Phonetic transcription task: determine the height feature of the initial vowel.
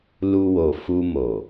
high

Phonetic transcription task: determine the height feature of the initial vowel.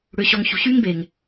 high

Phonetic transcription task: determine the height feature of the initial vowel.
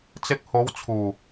high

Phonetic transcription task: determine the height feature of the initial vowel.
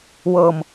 mid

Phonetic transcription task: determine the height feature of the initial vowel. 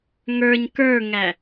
mid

